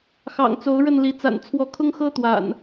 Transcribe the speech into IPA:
xɑ̰˨˩ŋt͡so˨˦ʊ̯ ɻə˥˨nli˨˦ t͡sa̰˨˩nt͡sʰwɔ˨˦kʰʊ˦ŋxɤ˦ t̪wa̰˨˩n

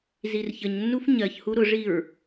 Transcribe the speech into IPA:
zirçəɲnːuf ɲɜçhu ɾʊʐiɹ

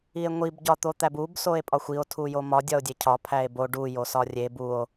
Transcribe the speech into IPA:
ie̯ŋʷib ɟɒt̪ot̪æbub soe̯pʼɒxʷio̯ tʰujomɒ dʲɒo̯dʲecʰɒ pʰæe̯bo ɖu josɒrʲeb uo̯

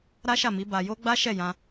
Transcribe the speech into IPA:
ɾa˦ʃa˦˨mi˨˦ ba˧jo˦ ɡ͡ba˦ʃɛ˦˨jã˧

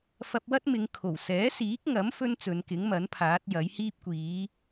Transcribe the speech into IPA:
fɐ˧p̚wɐ˥t̚mɪ˨˧ŋ kʰo˨˩wsɛː˨˥siː˨˥k̚ŋɐ˨˥m fɵ˥nt͡sɵ˨˧nkɪ˨˥ŋmɐ˨˥n pʰaː˨˥t̚jɐ˨˥j hiː˥p̚kʷiː˨˥

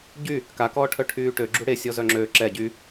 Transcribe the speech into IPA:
ɟy | kakɔːʈʰœ ʈʰyːʈø ɡ͡ǁuɽesʲɔ zœŋ͡ǁøː ǁɛ ɟy

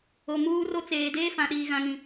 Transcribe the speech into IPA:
o˨muː˦ro˦ t͡seː˨deː˦ fã˨ɗiː˨ɣã˨ŋĩ˨

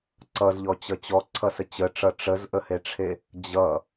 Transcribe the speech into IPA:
ǀʌzʎɔt͡ɕʌ t͡ɕɔǀʰʌsə t͡ɕəʈ͡ʂʌ ʈ͡ʂəzʔəheʈ͡ʂʰe | d͡ʑʌ

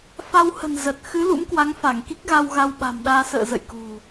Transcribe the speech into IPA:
fa˧whə̤˨˩n zə˨˩t̚ xɨ˨˦ lṵ˧˥mkwa˨˦ŋ fa˧˩ŋki˦˥k̚ɣa˧w ɣa˧wɓa̤˨˩mɗaː˧ sə̰ː˧˨zə̰˧˨j kṳ˨˩

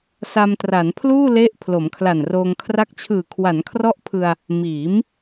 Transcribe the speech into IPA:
sa˧mtra˩˦npʰluː˥˩ le˦˥ʔ pʰlo˩˦mkʰla˨˩nroː˧ŋ kʰra˦˥k̚t͡ɕʰɯː˨˩ kʰwa˩˦nkʰrɔ˦˥ʔ pʰɯ˧a̯ | miː˩˦m

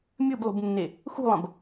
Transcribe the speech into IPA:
mʲɨblˠṳbnːe | xṳlˠɐ̃b

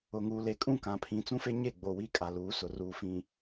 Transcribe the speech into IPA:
ʊ˨ŋuː˨le˨ kʼũ˦˨kã˨pʰĩ˨t͡sũ˦ fe˦ɲe˦˨ɡ͡boː˨ wiː˦kʼa˨ luː˨˦ sʊ˨ruː˨ fĩ˨

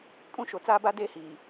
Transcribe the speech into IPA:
kʼũ˦ʃo˨t͡saː˦ba˦ deː˦hiː˨

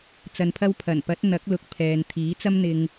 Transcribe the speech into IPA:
t͡sɐ˧npʰɐ˥w pʰɐ˨˩npɐ˨˥t̚ n̪ɐ˨˥k̚ lʊ˨k̚ pʰɛː˨n t̪ʰiː˨˥t͡sɐ˥mn̪ɪ˧ŋ

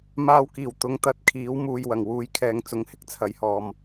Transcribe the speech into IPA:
maː˧wkiː˨˩w t̪ʊ˨˧ŋ t̪ɐ˨t̚kʰiː˨˥wmuː˨j wɐ˨˩ŋ wuː˨jkʰɛː˨ŋ t͡sʊ˨˥ŋhɪ˥k̚t͡sʰɐ˨˥jhɔː˨m

